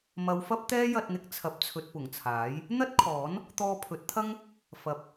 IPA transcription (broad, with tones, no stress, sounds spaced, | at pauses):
m ɐ˨˧ w f ɐ˥ p̚ t̪ ɛː˥ j ɐ˧ t̚ n̪ ɪ˧ k̚ t͡sʰ ɐ˨ p̚ t͡sʰ ɵ˨ t̚ p ʊ˨˩ ŋ t͡sʰ aː˨˥ j | n̪ ɐ˥ t̚ kʰ ɔː˨˥ n | t̪ ɔː˧ pʰ ɵ˨˥ t̚ t̪ʰ ɐ˥ ŋ | f ɐ˨ p̚